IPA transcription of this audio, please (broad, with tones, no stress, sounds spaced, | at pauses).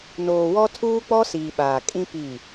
n oː˨ w ɔ˦ tʰ uː˦ k͡p ɔ˦ s iː˨ ɓ aː˨ kʼ ĩ˦ p i˦˨